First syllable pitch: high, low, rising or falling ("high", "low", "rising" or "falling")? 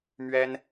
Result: high